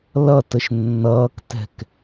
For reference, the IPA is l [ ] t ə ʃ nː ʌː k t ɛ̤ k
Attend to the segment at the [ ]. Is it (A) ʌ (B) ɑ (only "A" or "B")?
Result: A